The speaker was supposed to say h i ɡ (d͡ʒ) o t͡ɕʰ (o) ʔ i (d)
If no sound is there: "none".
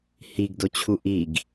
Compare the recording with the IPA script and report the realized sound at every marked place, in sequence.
d, u, ɡ

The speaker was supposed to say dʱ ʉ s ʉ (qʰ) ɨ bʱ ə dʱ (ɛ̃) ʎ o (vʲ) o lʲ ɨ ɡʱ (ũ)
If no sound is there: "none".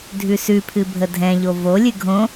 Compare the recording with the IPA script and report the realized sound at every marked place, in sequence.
pʰ, ɛ̃, v, õ

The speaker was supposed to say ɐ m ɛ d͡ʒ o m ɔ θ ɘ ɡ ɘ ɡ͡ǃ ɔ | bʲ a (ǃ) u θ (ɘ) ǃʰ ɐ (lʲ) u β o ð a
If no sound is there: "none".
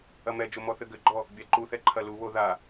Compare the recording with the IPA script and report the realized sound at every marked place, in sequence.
ǃ, ɛ, l

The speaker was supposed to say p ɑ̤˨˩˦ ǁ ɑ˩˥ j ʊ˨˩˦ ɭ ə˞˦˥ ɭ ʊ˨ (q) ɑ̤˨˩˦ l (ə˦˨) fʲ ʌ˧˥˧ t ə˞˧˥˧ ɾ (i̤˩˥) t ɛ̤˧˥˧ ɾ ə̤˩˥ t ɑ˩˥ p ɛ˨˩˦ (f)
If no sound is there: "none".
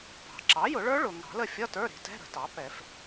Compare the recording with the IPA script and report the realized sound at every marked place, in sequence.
ŋ, ə˦˨, i̤˩˥, f

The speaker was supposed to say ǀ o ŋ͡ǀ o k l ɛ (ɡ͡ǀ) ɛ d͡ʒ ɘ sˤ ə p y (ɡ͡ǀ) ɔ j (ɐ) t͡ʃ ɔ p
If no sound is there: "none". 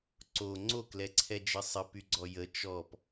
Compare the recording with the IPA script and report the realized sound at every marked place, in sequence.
ǀʰ, ɡ͡ǀ, ə

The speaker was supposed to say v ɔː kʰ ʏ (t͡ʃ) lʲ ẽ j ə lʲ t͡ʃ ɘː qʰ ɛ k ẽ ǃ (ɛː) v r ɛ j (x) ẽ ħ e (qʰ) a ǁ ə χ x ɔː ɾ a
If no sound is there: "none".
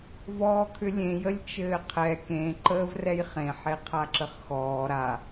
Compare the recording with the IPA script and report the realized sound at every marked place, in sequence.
none, əː, χ, qʰ

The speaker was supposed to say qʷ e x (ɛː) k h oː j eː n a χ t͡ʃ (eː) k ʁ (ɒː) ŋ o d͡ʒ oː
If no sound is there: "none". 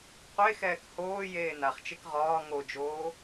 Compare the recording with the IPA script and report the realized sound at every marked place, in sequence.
ɛː, e, ɒː

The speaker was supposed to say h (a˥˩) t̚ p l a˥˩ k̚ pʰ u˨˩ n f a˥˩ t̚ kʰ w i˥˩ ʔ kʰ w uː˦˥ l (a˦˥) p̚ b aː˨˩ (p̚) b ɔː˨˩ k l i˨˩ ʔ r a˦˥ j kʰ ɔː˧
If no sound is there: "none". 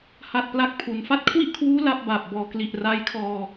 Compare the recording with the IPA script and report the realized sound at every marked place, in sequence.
a˥˩, a˥˩, p̚

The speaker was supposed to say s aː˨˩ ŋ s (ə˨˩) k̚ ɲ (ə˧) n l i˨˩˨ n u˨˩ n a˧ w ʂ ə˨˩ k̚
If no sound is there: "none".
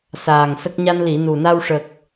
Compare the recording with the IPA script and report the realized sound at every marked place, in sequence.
ə˦˥, a˧

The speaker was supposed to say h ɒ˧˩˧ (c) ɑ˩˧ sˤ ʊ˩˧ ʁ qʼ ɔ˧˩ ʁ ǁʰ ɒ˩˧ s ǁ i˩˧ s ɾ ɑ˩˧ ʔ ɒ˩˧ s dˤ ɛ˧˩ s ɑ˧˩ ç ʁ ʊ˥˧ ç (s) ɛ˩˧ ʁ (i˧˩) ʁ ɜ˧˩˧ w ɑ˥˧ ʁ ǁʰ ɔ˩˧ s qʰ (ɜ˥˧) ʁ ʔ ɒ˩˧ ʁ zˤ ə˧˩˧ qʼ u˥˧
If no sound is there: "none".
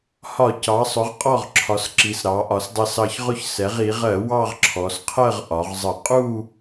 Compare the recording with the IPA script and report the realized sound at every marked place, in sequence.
c, s, i˩˧, ɜ˥˧

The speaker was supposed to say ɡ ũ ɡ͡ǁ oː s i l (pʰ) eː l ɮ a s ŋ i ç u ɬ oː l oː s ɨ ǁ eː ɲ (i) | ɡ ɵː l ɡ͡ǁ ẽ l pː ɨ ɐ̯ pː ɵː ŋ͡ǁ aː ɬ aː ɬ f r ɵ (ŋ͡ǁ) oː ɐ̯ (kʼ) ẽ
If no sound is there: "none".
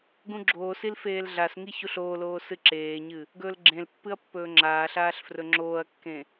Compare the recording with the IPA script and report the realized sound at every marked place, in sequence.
f, ɨ, ŋ͡ǁ, kː

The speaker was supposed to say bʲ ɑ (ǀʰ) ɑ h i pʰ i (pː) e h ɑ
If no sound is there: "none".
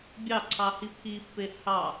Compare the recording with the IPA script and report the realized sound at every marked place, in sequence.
ǀʰ, pː

